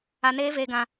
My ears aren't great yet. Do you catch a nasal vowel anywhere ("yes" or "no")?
yes